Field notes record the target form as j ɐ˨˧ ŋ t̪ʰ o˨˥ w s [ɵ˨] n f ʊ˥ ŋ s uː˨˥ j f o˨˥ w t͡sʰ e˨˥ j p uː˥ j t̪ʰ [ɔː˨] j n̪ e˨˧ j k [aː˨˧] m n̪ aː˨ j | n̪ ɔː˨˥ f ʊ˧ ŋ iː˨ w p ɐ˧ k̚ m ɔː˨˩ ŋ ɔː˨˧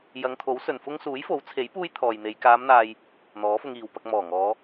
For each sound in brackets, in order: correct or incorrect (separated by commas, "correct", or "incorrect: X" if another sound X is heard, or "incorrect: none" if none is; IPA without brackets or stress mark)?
correct, correct, correct